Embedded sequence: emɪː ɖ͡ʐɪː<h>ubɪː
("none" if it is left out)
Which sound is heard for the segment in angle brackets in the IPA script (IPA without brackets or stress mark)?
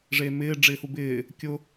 h